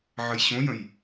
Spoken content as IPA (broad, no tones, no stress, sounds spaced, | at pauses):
ʕ ə j ɕ õ j ə̃ j